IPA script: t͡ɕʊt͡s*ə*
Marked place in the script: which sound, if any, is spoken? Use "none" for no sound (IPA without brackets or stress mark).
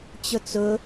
ʊ